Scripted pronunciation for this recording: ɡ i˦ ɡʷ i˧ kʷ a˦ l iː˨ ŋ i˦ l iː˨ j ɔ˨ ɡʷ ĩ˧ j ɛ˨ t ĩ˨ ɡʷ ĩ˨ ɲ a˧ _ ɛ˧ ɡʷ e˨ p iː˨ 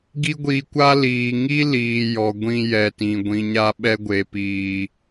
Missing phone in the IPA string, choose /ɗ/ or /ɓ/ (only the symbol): ɓ